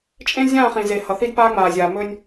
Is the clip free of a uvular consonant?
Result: no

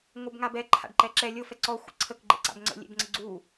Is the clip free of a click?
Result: no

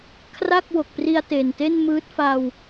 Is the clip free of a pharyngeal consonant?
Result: yes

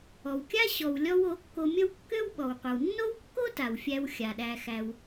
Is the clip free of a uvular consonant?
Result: no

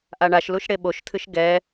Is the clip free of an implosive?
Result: no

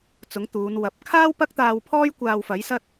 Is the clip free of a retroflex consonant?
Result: yes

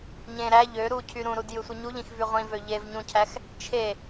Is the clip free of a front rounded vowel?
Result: no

